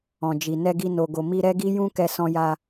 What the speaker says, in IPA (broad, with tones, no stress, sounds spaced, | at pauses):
ɔ̃˨ d͡ʒ i˨ n ɛ˧ ɡ i˧ n o˨ ɡ o˨ m i˧ ɾ ɛ˦ ɡ i˦ j ũ˦ k ɛ˧ s ɔ̃˧ j a˧